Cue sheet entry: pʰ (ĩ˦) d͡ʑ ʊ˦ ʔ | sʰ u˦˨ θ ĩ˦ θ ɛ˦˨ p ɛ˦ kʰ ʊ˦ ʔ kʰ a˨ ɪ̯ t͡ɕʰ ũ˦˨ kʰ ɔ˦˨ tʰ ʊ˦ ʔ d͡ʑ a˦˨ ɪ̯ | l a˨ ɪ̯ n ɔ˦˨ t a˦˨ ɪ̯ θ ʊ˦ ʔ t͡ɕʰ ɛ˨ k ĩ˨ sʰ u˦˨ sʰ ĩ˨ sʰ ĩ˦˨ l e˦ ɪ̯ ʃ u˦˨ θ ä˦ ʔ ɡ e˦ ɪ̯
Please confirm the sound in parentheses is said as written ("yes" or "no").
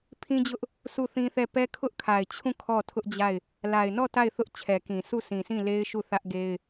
yes